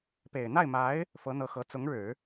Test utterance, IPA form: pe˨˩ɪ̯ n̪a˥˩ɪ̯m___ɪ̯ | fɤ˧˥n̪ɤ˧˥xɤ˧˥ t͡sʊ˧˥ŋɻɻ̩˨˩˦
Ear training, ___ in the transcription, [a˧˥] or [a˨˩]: a˧˥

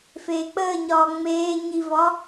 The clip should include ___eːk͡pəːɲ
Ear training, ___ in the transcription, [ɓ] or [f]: f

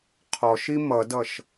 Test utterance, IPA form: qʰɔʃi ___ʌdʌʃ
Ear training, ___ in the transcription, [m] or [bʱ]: m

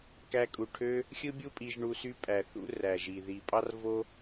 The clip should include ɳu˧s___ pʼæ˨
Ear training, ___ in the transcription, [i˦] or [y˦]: y˦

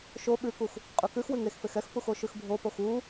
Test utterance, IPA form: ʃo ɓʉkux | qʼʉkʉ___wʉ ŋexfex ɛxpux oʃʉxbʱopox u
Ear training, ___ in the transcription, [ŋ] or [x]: x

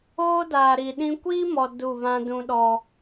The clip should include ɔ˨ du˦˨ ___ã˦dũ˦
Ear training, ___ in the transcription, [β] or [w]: β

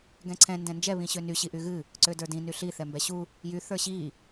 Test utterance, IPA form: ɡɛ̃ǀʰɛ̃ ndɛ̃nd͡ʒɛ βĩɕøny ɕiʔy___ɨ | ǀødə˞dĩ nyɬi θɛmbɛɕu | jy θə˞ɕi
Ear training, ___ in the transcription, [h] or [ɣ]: ɣ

